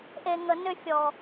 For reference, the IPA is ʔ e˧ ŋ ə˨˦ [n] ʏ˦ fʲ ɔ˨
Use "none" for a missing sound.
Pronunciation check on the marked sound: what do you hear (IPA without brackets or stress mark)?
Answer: n